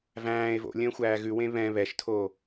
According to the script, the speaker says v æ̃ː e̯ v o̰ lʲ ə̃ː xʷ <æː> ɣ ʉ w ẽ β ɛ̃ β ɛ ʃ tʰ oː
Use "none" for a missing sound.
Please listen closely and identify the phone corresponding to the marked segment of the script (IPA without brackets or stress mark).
æː